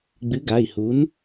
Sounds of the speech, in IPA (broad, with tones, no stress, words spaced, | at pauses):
ɡ͡bɨ˨˥ɡa˩˧˩i̯ hu˨˥n